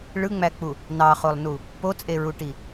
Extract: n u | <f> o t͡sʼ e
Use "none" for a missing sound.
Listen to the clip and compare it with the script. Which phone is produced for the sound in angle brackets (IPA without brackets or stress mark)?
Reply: p